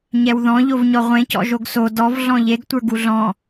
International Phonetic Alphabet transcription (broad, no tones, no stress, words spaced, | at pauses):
ɲɛwðɔ̃ʎovɲɔ ʁʷẽ cɔ̰ʒoɡso dɔv ɮɔ̃ʎeɡtʷə˞ ɡuɮɔ̃